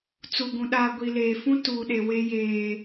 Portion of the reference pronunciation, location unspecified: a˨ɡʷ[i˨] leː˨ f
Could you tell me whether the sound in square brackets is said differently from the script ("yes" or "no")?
no